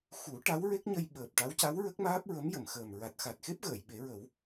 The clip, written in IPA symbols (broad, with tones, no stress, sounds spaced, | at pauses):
x u˨˩˦ ʈ a˧˥ w ɹ e˦˥ k̚ ɲ ə˧ j ɓ əː˨˩ p̚ ʈ a˧˥ w c a˧˥ w ɹ ə˦˥ k̚ m aː˦˥ p̚ ɹ ə˧˥ m j ə˨˩˨ m x əː˨˩ m ɹ a˨˩ t̚ x a˨˩ t̚ x e˦˥ p̚ ɣ əː˨˩˨ j ɓ e˨˩˦ ɹ ə˨˩˦ w